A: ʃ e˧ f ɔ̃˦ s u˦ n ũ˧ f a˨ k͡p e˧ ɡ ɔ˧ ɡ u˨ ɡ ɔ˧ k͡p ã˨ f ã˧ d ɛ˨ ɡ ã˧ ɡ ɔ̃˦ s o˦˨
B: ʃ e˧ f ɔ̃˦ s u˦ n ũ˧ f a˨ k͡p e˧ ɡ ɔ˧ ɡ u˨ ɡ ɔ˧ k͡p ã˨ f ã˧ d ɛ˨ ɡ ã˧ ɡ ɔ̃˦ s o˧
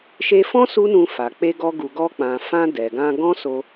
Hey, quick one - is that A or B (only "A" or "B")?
B